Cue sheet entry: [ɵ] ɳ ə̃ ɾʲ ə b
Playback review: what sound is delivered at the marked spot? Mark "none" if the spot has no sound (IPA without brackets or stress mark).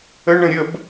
ə